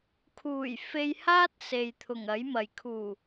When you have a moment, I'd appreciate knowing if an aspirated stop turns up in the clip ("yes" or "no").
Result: yes